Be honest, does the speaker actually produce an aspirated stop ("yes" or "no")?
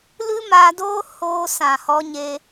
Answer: no